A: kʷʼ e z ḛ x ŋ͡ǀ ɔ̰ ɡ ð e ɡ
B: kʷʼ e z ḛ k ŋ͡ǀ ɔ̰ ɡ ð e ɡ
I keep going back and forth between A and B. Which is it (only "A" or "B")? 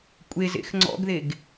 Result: A